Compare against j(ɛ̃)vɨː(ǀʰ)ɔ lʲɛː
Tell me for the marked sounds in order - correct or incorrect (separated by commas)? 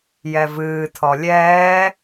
incorrect, incorrect